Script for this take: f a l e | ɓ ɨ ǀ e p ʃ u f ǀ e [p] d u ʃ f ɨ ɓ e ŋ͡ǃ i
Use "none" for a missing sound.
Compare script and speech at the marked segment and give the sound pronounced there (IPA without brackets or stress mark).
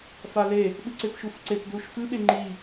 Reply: p